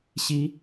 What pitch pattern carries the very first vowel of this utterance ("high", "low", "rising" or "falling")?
rising